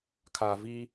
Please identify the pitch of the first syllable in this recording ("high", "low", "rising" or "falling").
low